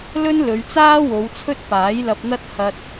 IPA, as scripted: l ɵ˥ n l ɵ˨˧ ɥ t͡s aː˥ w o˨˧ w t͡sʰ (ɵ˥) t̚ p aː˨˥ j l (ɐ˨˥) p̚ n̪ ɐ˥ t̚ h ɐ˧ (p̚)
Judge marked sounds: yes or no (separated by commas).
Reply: yes, no, no